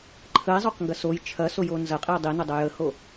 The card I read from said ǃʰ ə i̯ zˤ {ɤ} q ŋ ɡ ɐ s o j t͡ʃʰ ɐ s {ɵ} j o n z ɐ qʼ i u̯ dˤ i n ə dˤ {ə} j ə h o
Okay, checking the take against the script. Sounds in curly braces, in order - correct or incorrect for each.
incorrect: o, incorrect: o, correct

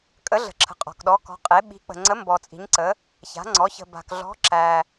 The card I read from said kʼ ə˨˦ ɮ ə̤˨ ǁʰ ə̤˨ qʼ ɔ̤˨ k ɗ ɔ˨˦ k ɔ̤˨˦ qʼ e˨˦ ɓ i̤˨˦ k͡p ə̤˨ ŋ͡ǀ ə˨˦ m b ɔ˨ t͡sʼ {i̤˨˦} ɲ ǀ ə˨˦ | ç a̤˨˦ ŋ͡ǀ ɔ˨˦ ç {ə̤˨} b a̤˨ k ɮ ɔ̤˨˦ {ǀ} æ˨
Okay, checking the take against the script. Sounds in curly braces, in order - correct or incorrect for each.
correct, correct, incorrect: ǁ

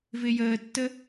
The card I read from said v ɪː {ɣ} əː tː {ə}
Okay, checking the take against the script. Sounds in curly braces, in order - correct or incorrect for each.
incorrect: j, correct

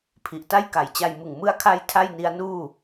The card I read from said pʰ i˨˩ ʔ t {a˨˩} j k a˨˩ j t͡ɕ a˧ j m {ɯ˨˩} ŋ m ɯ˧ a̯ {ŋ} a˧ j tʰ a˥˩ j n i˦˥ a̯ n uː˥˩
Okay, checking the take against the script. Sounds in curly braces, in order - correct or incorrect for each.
incorrect: a˥˩, correct, incorrect: kʰ

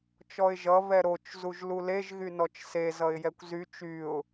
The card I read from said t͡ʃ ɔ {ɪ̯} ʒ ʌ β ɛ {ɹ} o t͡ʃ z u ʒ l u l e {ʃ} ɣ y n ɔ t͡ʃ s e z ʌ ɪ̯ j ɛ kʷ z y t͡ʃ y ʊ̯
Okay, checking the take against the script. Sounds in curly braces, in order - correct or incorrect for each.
correct, incorrect: ɾ, incorrect: ʒ

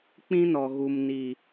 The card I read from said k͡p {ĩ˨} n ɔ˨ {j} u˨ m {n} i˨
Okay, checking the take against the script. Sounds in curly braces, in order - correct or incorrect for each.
incorrect: ĩ˦, incorrect: ɣ, correct

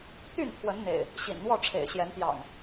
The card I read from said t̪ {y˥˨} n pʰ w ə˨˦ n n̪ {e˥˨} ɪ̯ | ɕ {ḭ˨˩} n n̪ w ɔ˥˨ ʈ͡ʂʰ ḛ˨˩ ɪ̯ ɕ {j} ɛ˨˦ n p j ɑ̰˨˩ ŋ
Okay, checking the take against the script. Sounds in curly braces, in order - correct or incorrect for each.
correct, incorrect: ḛ˨˩, correct, correct

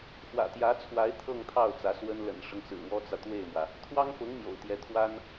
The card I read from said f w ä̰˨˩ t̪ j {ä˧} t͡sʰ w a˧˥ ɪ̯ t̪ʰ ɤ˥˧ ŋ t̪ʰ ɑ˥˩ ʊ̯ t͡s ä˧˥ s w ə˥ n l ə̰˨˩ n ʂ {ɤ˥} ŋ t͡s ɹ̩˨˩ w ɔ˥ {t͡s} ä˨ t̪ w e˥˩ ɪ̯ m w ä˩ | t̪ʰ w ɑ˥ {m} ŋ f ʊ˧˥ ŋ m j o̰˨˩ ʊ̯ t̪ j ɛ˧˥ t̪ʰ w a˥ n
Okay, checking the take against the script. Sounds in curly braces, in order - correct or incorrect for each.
incorrect: ä˧˥, incorrect: ɤ˦, correct, incorrect: none

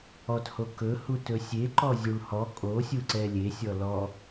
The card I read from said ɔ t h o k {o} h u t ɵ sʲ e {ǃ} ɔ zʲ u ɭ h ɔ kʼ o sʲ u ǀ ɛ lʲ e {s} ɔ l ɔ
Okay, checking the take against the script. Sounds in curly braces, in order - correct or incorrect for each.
incorrect: ɵ, correct, incorrect: sʲ

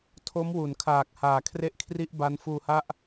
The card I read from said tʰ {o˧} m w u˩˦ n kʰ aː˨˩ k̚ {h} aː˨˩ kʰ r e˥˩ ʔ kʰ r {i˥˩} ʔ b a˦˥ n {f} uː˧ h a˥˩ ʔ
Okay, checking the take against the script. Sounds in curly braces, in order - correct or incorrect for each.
incorrect: o˦˥, correct, correct, correct

